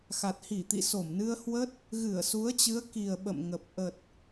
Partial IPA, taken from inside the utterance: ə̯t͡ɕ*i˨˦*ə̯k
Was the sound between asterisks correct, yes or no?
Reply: no